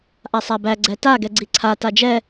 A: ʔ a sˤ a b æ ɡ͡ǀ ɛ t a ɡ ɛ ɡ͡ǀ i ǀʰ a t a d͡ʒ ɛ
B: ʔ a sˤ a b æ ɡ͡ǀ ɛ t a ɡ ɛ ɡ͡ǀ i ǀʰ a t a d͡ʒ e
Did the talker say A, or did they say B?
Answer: A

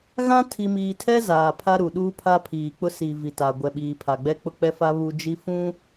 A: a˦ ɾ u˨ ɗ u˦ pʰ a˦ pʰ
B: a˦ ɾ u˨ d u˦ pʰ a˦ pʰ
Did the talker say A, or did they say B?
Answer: A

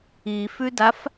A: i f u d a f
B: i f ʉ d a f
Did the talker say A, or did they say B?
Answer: B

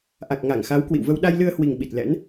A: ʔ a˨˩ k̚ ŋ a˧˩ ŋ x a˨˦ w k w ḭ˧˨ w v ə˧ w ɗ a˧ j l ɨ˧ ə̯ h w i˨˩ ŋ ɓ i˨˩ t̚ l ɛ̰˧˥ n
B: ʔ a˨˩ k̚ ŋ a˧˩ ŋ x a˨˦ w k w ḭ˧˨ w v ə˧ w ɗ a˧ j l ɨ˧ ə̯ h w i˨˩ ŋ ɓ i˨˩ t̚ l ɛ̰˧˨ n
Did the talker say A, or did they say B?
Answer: A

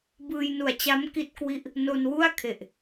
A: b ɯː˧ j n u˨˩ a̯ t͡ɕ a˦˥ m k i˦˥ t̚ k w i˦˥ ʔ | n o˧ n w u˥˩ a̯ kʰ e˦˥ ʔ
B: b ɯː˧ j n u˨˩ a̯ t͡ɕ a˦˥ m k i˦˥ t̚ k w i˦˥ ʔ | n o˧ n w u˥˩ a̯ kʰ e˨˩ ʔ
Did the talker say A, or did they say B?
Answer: B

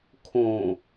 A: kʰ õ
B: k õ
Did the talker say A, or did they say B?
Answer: A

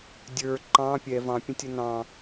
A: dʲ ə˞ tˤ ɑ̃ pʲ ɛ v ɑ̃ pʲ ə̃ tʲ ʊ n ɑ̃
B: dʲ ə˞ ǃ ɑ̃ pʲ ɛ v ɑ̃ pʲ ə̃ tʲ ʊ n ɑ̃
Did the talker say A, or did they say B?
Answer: B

